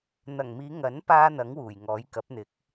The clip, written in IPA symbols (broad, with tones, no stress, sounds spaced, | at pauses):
n̪ ɐ˨˩ ŋ m iː˨˧ ŋ ɐ˨˥ n p aː˥ n̪ ɐ˨˥ ŋ w uː˨˩ j ŋ ɔː˨˥ j k ɐ˨˥ p̚ n̪ ɪ˨˥ k̚